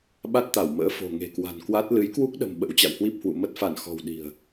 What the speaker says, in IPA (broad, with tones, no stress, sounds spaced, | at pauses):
ɓ a˦˥ t̚ t̪ a˧˩ w m ə̰ː˧˥ f o̤˨˩ ŋ e̤˨˩ k w a̤˨˩ n k w a˦˥ t̚ l ɨ˨˦ j k w u˦˥ k̚ ɗ ə̤˨˩ m ɓ ə̰˧˥ w t͡ɕ a̰˧˨ w h w i˦˥ p̚ h w ṵ˧˨ m ə˦˥ t̚ f a˧˩ n x ɔ̤˨˩ w ɗ i̤˨˩ ə̯